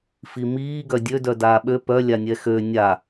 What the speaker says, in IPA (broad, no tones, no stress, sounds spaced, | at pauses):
f i m iː ɡ œ dʲ ø d œ d aː ɓ ø p œ lʲ a nʲ ɛ x ø nʲ a